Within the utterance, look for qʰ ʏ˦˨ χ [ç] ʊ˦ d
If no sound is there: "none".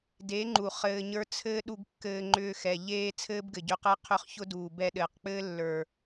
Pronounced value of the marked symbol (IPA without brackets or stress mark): ç